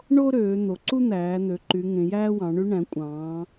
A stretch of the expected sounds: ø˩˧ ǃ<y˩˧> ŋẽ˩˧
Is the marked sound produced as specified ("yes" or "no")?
yes